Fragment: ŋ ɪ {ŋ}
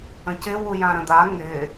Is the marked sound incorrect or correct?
incorrect